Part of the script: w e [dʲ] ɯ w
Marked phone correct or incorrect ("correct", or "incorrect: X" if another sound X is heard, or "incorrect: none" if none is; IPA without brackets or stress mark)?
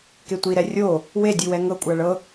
correct